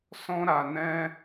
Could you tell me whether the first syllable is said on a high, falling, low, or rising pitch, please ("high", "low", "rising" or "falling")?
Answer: high